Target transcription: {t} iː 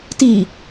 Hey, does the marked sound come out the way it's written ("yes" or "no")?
yes